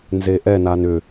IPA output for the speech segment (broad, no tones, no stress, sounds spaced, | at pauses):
n z e ʔ ɛ n a n ʏ